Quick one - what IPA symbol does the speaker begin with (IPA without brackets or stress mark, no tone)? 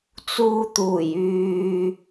t͡s